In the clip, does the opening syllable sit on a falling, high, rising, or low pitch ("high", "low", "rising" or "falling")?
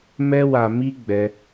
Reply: high